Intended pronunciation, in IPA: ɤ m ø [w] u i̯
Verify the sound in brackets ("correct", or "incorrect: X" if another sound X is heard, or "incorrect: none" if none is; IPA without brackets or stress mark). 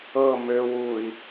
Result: correct